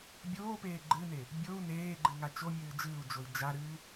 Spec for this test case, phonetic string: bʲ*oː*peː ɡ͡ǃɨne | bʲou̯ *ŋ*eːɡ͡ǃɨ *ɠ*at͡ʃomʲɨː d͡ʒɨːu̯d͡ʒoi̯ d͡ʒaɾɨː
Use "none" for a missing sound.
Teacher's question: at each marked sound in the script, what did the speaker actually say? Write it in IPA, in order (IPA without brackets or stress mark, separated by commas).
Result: oː, n, ŋ